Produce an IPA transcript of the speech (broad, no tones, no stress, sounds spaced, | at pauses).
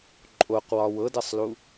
ǃʼ o q w ɒ w ɤ d ɛ sˤ l u